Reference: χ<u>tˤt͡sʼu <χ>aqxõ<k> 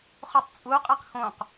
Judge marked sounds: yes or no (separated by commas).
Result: yes, no, no